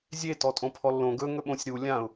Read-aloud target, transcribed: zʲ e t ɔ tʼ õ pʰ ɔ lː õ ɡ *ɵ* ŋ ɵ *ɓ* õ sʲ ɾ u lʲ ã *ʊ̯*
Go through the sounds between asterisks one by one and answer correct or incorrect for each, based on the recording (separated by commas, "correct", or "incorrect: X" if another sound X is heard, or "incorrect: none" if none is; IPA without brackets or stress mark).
correct, correct, correct